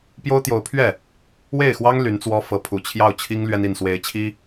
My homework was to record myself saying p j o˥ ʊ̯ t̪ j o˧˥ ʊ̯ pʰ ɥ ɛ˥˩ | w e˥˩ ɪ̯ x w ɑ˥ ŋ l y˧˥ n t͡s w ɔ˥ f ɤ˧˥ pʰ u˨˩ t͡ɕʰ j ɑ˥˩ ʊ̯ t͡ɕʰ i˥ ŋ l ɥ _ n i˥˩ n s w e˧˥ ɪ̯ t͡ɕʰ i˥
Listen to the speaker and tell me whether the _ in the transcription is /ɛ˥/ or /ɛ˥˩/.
ɛ˥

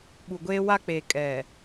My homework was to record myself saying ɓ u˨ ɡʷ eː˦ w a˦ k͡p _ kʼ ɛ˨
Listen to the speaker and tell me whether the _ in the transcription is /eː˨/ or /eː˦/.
eː˨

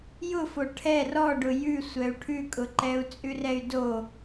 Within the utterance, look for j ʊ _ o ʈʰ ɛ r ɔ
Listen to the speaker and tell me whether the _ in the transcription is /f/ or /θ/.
f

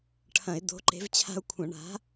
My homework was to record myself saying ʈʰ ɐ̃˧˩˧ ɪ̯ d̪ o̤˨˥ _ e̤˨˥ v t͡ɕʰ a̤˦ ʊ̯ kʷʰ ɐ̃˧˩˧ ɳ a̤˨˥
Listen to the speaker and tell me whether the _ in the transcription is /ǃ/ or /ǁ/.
ǃ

